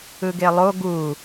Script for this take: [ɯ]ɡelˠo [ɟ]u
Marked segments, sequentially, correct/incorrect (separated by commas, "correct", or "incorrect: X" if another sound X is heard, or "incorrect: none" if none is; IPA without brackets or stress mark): correct, incorrect: ɡ